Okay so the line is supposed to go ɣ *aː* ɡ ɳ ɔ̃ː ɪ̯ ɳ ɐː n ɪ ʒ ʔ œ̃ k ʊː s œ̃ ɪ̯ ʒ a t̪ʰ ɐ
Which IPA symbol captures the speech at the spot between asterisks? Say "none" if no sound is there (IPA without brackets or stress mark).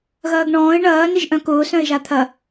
ɐː